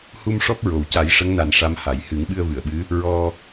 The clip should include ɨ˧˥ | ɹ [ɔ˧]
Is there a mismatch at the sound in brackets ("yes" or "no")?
no